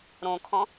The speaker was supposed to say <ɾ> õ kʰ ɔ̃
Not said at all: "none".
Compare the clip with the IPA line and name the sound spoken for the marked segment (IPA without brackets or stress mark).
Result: ɾ